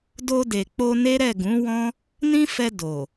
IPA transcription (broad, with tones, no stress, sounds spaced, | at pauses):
d o˧ d e˨ k͡p o˧ n e˦ ɾ ɛ˦˨ ɡ ũ˨˦ w ɔ̃˦ | n ĩ˦ f ɛ˧ d o˨